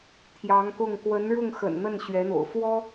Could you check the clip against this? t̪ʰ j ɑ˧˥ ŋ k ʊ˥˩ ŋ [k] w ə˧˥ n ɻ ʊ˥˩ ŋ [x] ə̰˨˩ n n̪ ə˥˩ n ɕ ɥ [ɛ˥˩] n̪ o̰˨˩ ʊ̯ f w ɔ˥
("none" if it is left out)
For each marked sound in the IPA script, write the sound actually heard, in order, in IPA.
k, x, ɛ˧˥

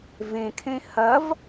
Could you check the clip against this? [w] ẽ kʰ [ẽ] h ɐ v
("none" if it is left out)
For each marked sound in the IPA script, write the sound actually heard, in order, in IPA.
v, ẽ

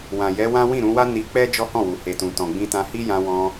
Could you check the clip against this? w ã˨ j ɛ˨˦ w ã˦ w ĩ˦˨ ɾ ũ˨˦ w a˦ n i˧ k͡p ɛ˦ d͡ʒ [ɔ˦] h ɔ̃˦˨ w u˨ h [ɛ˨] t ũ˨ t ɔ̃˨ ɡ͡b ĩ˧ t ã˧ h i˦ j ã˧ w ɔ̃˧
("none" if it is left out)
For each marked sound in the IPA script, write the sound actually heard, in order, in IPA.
ɔ˦, e˨

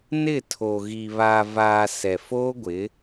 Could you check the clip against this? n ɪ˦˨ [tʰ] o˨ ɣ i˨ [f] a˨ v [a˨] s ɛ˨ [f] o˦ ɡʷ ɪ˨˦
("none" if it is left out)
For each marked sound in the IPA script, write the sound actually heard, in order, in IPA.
tʰ, β, aː˨, f

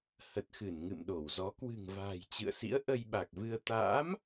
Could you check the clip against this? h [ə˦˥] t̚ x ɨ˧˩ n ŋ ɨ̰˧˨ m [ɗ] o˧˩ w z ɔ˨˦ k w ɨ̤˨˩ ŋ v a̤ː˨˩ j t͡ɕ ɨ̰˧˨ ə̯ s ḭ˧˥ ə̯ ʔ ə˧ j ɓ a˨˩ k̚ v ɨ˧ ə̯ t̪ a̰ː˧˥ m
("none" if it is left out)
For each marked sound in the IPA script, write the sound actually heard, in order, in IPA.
ə˨˩, ɗ

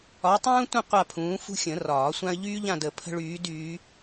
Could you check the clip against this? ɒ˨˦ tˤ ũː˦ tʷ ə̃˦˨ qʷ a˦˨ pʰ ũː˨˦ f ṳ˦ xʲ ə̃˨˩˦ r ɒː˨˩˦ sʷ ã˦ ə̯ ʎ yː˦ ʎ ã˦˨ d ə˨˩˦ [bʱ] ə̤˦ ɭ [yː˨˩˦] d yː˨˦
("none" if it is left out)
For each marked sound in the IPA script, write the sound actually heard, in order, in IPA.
pʰ, yː˨˦

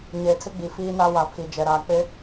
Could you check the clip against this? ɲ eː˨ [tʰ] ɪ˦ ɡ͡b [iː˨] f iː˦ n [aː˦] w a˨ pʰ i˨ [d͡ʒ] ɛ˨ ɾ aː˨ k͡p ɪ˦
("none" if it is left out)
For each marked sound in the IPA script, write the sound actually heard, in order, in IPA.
tʰ, i˨, a˦, d͡ʒ

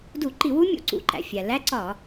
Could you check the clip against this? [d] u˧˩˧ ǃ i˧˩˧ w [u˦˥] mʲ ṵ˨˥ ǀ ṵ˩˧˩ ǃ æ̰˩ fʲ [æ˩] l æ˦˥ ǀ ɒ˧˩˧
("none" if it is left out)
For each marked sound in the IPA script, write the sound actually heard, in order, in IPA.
d, u˦˥, æ˩

